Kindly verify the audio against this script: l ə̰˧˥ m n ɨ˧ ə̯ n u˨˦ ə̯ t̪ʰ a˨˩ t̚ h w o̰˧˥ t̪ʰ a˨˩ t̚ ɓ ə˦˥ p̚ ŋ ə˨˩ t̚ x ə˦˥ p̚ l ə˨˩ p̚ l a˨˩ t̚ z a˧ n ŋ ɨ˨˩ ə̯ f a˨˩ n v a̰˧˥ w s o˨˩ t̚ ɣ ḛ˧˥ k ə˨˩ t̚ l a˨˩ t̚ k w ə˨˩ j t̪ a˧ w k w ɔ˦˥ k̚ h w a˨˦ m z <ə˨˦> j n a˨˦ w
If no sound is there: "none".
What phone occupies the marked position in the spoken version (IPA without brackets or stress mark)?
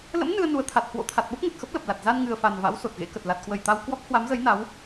ə˨˦